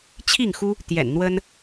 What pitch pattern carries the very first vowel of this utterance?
falling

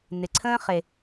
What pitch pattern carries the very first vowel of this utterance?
low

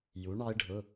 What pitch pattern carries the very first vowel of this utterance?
rising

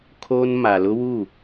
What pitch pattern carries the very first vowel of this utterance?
high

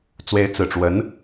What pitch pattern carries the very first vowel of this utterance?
rising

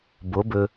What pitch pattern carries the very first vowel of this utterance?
rising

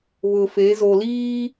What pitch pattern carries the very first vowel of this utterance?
low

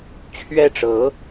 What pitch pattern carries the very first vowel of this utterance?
falling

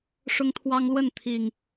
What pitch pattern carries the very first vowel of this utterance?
high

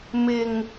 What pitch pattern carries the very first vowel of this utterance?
low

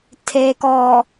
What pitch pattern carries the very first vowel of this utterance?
low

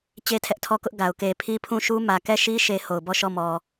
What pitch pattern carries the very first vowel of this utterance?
high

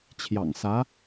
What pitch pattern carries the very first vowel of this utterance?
low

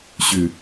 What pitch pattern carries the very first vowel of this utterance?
low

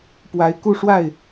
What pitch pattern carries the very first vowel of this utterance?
rising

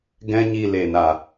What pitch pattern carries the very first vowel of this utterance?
high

